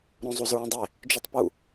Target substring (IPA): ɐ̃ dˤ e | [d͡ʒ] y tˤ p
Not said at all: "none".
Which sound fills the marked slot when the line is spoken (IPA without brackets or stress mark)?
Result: d͡ʒ